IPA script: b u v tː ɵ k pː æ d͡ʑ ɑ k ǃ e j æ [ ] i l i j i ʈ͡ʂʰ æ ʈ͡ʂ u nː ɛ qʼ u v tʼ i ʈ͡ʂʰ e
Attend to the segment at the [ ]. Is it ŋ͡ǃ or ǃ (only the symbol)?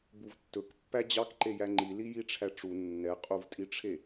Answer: ŋ͡ǃ